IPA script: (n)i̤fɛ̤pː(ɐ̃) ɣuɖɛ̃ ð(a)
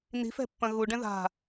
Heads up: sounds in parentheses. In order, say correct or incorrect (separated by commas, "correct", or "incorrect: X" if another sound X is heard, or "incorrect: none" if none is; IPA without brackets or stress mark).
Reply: correct, correct, incorrect: a̤